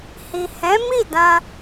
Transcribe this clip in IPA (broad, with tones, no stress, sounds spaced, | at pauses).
h i˨ h ɛ̃˨˦ m i˦˨ d ã˧